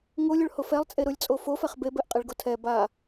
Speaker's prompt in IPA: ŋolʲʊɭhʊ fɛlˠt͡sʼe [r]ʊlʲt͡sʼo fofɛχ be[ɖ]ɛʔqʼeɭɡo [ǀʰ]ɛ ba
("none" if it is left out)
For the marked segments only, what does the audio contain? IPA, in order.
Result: ɾ, b, tʰ

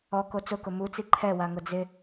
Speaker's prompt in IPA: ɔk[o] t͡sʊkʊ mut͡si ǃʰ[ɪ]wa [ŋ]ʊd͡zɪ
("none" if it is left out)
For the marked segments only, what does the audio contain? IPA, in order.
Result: o, ɛ, ŋ

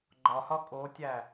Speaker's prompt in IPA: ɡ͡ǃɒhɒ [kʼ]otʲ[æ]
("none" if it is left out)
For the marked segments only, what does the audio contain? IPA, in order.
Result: kʼ, æ

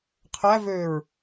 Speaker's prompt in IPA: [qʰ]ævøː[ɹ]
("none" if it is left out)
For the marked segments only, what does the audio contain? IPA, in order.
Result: qʰ, ɹ

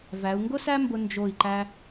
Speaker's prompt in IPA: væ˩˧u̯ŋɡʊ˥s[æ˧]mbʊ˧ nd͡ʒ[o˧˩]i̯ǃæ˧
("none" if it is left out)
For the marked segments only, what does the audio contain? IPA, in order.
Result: æ˥, o˧˩

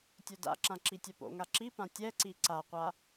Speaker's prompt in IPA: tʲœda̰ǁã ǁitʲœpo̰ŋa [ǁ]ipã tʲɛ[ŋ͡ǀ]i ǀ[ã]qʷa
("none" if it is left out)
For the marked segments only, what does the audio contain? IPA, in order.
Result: ǁ, ǀ, a

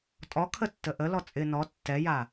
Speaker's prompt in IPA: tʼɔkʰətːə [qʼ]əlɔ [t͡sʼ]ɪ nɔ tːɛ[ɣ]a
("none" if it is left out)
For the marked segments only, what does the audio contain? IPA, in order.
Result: ʔ, t͡sʼ, j

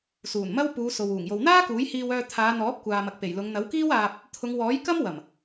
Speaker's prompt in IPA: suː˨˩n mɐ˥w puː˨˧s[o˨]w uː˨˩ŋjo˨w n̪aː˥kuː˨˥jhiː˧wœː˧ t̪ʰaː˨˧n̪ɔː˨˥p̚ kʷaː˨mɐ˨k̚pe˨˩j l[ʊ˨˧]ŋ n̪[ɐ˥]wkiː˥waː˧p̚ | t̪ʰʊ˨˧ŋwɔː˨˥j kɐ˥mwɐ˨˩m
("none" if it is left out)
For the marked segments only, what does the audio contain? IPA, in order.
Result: o˨, ʊ˨˧, ɐ˨˥

